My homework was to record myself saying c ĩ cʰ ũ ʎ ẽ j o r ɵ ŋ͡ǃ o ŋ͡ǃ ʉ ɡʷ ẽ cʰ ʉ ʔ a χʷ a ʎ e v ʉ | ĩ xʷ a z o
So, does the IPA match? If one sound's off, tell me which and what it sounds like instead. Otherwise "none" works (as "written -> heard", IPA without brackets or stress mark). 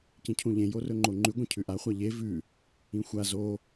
none